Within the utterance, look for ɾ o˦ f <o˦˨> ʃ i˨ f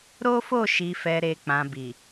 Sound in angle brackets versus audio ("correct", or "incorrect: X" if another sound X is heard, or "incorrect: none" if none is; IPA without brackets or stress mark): correct